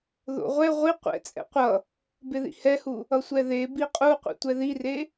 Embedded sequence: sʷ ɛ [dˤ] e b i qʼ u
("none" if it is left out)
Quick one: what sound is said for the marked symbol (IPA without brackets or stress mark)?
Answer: ð